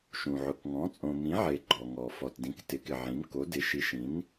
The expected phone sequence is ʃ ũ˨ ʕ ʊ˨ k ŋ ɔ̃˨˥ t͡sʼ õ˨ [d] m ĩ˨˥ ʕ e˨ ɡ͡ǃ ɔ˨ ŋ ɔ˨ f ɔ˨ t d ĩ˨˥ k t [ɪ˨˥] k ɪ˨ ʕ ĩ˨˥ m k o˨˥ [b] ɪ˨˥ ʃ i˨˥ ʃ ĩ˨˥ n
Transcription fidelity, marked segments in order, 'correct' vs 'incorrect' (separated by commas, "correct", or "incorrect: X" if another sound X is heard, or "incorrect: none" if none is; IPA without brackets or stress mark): incorrect: none, correct, incorrect: d